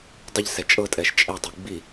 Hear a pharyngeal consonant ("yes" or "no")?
no